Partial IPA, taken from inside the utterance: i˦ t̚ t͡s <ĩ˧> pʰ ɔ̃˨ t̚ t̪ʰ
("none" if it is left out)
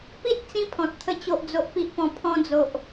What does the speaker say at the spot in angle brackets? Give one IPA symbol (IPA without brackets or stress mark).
ĩ˦